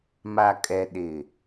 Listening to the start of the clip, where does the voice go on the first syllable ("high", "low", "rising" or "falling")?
low